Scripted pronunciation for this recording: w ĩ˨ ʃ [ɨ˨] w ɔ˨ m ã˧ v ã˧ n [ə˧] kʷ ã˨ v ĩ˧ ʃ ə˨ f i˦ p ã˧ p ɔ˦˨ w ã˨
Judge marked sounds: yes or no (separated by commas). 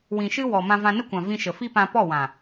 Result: no, no